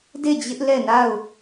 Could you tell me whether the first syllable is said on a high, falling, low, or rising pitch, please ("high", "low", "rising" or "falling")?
falling